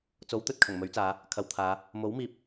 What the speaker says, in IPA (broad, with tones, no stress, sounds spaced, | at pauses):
t͡s o˨˥ w t̪ ɵ˨ t̚ kʰ ɐ˨˩ ŋ m ɵ˨˥ ɥ t͡s aː˨˧ | kʰ ɐ˨ w t̪ʰ aː˨˧ | m o˨˥ w m iː˨ p̚